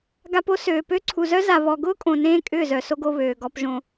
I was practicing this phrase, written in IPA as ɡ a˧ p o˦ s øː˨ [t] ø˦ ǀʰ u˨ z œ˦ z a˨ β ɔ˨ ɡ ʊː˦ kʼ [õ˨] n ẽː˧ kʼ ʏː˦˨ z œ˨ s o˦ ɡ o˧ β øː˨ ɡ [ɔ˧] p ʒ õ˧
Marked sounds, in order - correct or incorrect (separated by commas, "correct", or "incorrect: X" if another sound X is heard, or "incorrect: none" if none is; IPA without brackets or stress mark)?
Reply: incorrect: p, correct, correct